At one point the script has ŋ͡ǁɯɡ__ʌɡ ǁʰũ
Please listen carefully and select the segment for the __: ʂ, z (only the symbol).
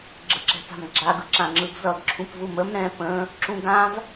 z